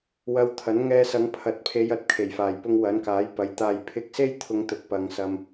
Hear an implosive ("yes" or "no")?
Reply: no